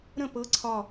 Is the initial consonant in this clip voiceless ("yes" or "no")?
no